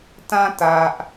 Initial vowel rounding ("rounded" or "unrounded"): unrounded